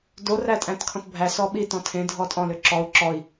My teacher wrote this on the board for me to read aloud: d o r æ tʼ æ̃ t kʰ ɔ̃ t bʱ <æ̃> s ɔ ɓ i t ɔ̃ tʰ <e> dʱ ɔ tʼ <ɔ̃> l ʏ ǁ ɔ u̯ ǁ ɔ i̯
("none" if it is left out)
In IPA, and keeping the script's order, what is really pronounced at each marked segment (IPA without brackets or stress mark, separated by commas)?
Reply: æ, ẽ, ɔ̃